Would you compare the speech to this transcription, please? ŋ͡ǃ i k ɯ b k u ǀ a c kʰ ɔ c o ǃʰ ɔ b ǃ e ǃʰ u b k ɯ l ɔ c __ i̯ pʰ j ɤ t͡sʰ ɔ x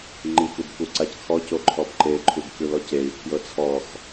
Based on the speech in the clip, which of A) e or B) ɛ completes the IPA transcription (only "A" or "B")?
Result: A